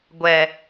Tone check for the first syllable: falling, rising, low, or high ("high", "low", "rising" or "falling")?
low